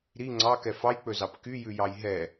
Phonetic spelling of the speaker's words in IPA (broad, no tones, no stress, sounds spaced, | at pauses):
ɾ i ŋ͡ǀ ɑ k ɛ f ɑ j k͡p ɵ z ɑ p k y j ʉ j ɑ j ɦ ɛ